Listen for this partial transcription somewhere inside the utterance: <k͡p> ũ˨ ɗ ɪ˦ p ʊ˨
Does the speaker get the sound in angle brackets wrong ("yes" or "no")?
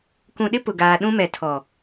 yes